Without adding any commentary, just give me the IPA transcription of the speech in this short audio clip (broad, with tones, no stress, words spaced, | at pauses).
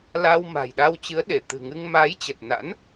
la˧w ma̤˨˩jɗa˧wt͡ɕɨ˨˦ə̯ ɗe˧˩t̪ɨ̤˨˩ ŋɨ˧ŋ ma˨˦j t͡ɕə˨˩t̚na̰˧˥n